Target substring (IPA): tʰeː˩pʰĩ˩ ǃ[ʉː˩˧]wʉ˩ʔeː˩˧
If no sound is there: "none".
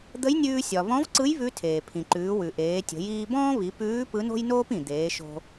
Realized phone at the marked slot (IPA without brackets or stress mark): ʉː˩˧